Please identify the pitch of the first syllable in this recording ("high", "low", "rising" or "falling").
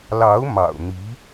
rising